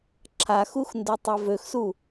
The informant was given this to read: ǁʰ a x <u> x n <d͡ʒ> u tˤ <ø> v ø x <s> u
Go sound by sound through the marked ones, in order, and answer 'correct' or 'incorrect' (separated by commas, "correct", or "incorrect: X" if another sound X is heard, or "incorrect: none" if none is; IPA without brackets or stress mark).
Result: correct, incorrect: d, incorrect: e, correct